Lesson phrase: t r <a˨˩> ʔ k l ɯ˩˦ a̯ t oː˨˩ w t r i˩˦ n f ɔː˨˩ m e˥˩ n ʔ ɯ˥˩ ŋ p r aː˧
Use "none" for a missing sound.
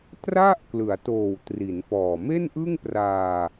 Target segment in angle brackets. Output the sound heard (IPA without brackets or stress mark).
a˥˩